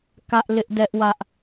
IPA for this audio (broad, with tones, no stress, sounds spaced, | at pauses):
k ä˦ ʔ l ɪ˦ ʔ d ɛ˦ ʔ w ä˦ ʔ